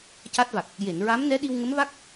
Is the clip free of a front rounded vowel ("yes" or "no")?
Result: yes